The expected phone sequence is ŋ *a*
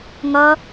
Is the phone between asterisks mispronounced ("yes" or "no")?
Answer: yes